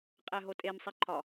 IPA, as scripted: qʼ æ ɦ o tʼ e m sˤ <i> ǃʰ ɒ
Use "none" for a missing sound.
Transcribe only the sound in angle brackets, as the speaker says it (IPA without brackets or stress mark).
i